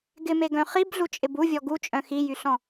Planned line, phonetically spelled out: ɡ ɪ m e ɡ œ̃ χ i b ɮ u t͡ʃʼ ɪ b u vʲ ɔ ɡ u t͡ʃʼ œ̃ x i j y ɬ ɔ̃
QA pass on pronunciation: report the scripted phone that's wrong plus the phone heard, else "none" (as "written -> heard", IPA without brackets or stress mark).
none